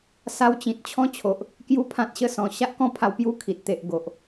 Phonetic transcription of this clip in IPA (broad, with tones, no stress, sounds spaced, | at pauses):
s a˧ w t͡ɕ ĩ˨ t̚ t͡ɕʰ ɔ̃˦ t͡ɕʰ o˨ ʔ | k j u˦ pʰ ã˦ t̚ ɕ ə˥˧ s ɔ̃˧ ɕ a˦ ʔ k ɔ̃˦ pʰ a˧ w p j u˦ kʰ i˨ t̚ t̪ e˨ ʔ ɡ o˨ ʔ